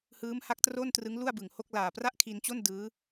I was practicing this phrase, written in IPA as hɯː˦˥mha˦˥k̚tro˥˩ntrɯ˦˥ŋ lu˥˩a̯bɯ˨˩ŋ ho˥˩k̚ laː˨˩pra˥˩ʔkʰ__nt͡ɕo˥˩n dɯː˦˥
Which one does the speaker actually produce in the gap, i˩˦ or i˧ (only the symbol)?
i˧